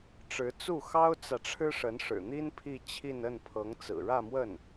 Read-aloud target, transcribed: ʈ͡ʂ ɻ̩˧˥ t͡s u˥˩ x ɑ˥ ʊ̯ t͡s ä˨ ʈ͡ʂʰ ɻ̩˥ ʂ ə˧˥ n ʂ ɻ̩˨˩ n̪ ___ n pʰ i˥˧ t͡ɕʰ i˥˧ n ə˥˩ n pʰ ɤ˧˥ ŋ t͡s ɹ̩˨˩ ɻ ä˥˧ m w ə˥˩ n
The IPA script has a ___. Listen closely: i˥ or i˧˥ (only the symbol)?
i˥